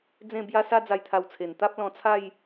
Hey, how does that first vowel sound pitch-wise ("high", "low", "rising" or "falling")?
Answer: falling